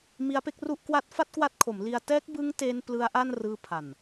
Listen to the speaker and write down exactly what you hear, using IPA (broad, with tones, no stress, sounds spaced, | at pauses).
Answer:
m i˦˥ a̯ p e˥˩ k̚ r u˥˩ ʔ k w a˥˩ t̚ f a˥˩ t̚ k w a˦˥ t̚ kʰ o˩˦ m l i˧ a̯ t ɛː˦˥ k̚ b ɯ˦˥ ŋ t e˧ n p l ɯ˦˥ a̯ ʔ a˥˩ n r ɯː˧ pʰ a˨˩ n